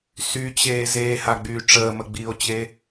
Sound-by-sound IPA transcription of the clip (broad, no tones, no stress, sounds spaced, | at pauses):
s y t͡ɕ eː z eː h a ɡ͡b yː ʈ͡ʂ əː m ə ɡ͡b iː o̯ t͡ɕ e